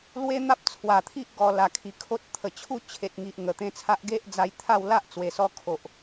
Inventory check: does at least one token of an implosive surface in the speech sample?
no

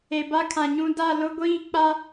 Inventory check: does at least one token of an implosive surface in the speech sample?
no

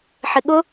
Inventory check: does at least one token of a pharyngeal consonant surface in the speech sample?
yes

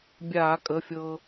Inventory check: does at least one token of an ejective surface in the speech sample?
yes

